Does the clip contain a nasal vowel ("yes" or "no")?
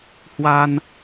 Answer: no